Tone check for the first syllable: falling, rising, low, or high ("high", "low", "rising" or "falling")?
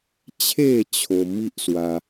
falling